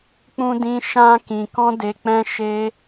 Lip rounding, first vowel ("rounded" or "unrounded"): rounded